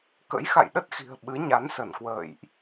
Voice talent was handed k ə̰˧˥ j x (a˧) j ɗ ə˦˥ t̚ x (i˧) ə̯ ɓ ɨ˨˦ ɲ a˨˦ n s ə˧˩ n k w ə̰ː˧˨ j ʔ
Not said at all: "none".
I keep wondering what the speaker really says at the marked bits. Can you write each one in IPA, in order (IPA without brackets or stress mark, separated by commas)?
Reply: a̰˧˨, i̤˨˩